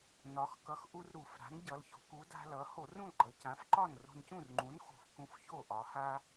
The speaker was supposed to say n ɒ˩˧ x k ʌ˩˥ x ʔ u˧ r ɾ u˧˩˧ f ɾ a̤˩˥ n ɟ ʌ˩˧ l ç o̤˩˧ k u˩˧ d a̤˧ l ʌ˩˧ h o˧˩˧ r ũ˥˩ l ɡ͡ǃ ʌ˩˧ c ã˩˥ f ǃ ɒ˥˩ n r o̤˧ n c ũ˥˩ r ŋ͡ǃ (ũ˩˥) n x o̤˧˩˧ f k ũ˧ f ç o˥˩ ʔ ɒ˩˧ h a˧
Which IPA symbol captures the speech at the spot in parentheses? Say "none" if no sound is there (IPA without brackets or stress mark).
ũ˩˥